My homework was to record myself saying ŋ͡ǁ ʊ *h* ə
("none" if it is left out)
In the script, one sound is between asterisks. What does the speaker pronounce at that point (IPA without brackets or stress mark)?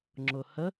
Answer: h